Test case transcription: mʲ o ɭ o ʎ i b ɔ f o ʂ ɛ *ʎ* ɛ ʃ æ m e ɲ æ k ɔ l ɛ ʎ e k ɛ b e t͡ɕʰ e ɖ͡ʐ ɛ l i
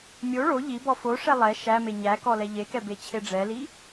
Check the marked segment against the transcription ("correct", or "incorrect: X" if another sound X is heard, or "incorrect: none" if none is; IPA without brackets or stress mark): incorrect: lˠ